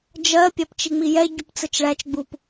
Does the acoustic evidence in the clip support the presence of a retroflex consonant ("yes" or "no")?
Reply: yes